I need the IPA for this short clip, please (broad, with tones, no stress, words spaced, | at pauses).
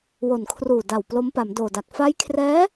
wo˨˩nkʰruː˨˩da˨˩w plo˦˥mpa˩˦mdoː˨˩da˨˩k̚ fa˦˥jkʰrɛː˦˥